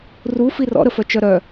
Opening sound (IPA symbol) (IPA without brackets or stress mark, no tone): r